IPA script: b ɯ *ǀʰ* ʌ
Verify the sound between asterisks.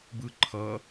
incorrect: ǃʰ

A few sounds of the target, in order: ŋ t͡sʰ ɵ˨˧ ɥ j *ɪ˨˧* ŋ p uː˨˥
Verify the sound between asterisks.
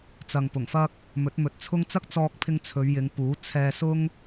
correct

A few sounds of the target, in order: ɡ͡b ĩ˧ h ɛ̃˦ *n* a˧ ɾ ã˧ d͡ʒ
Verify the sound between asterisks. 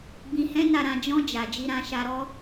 correct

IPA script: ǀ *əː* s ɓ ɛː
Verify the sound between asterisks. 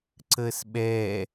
correct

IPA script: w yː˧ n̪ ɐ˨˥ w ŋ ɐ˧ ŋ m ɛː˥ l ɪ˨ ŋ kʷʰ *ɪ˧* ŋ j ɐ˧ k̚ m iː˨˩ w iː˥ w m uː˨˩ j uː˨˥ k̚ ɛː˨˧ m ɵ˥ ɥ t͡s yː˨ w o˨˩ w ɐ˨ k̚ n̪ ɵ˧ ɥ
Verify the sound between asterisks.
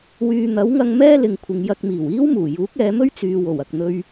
incorrect: ɪ˨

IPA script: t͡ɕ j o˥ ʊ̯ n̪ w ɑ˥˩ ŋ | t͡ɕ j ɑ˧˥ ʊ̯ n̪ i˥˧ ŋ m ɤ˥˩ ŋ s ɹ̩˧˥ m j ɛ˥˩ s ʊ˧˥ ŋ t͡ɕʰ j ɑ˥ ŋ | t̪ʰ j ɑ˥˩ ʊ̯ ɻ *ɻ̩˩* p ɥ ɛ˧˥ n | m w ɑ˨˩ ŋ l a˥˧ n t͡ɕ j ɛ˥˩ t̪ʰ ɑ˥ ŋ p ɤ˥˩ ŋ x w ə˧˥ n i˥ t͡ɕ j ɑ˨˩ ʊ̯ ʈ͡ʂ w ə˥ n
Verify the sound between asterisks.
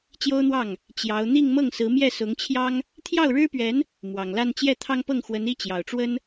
incorrect: ɻ̩˥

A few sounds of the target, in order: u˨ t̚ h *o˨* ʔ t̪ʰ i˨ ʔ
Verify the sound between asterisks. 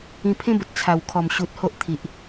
incorrect: o˦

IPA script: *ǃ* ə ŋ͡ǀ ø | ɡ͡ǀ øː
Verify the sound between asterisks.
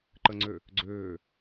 correct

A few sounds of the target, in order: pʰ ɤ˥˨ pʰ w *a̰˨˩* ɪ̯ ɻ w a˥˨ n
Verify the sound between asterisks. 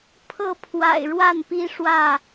correct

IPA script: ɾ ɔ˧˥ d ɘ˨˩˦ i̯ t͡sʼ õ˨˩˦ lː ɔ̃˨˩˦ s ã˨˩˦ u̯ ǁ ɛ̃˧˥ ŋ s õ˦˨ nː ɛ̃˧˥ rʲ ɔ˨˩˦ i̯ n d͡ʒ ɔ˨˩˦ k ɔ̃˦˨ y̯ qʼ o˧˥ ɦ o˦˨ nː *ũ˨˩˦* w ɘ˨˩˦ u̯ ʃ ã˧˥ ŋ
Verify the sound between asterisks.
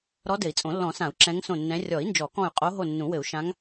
correct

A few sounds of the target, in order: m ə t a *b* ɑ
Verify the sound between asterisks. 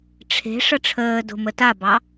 correct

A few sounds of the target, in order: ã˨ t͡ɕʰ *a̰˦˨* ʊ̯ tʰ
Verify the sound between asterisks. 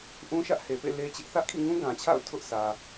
correct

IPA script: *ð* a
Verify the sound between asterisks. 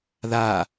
correct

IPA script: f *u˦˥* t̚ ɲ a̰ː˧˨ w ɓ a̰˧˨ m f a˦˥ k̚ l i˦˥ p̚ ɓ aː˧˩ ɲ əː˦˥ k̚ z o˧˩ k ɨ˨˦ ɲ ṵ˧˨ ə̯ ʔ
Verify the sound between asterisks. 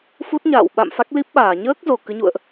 correct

